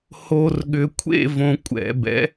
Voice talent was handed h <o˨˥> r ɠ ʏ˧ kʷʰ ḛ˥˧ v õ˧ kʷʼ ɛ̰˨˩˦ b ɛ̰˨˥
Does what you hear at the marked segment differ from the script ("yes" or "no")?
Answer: yes